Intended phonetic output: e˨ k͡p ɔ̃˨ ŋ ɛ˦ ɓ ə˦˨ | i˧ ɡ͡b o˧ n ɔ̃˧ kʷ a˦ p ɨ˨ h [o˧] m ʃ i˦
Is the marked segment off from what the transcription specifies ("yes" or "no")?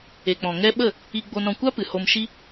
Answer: no